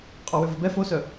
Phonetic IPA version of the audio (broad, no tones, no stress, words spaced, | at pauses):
qʼɔwʏvəbɛ fosœ